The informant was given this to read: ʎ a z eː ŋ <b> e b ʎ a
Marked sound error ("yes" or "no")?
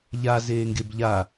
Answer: yes